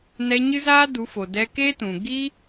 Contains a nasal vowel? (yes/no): yes